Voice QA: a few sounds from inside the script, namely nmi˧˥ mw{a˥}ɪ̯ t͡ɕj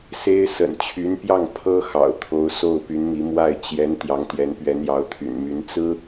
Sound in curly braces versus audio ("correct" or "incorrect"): incorrect